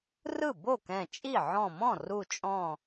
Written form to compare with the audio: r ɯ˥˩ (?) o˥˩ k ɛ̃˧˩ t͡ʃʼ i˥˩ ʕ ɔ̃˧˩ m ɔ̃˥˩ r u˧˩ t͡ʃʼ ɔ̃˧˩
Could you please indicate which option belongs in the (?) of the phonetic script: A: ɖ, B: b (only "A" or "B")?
B